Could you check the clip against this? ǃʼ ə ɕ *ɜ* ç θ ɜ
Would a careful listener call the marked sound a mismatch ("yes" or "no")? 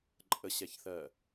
yes